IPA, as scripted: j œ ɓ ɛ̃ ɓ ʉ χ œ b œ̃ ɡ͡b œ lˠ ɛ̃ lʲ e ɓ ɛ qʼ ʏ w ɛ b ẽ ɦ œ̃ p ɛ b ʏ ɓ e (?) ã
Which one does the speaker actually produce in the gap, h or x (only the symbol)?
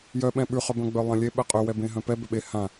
h